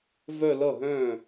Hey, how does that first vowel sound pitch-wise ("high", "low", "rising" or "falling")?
falling